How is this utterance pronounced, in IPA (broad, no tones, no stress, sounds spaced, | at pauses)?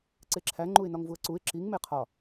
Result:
ǀ e ǁʰ æ ŋ͡ǃ u ɪ̯ n ɒ ŋ v u ə̯ ǀ u ɪ̯ ǁ i ŋ m e qʰ ɒ